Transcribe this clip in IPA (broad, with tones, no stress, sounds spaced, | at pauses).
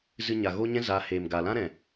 z ɨ˧ ɲ a˨ ɣ o˦ ɲ ɛ̃˦ z a˨˦ h eː˨ m ɡ a˨ l ã˦ ɾ ɛ̃˨